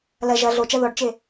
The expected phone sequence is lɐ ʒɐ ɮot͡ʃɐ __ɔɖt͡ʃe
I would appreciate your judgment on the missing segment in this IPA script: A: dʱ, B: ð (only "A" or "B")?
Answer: B